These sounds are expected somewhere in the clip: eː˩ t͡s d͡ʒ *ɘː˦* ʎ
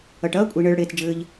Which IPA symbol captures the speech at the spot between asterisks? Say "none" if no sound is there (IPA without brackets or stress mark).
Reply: ɘː˨